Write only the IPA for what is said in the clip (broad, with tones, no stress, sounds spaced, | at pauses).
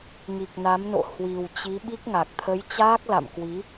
ŋ i˨˩ k̚ n a˨˦ m n o̰˧˨ h w i˨˩ w t͡ɕ i˨˦ ɓ i˦˥ k̚ ŋ a˨˩ k̚ t̪ʰ ə˨˦ j t͡ɕ aː˦˥ k̚ l a̰˧˨ m k w i˨˦